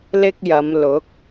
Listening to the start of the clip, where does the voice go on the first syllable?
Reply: high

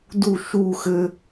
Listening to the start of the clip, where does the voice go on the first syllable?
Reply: falling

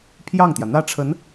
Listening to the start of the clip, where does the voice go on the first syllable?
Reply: falling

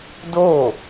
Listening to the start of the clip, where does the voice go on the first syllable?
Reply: falling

